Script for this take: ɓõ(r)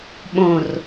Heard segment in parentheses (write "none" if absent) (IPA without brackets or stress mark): r